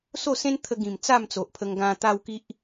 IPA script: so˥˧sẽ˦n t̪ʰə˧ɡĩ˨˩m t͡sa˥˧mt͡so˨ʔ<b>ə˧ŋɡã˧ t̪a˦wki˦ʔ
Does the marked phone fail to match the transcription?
yes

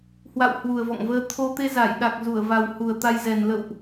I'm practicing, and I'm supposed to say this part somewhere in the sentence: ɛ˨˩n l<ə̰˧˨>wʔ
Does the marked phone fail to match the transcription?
no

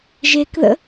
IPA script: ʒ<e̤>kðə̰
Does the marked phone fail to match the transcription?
yes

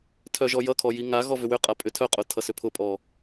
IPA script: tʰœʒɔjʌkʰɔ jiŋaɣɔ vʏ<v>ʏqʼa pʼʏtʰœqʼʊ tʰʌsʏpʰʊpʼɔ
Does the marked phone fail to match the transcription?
yes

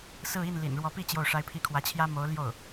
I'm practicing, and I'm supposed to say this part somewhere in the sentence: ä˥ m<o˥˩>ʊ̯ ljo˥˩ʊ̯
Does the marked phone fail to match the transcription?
yes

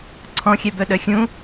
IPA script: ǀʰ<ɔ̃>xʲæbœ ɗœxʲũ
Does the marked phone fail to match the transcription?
no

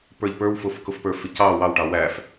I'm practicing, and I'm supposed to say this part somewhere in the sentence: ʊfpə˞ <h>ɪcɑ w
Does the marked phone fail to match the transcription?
yes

